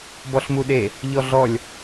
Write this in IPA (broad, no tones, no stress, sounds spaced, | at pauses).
b ɔ ɬ m u ɗ e | ʎ ɔ ɮ ɔ lʲ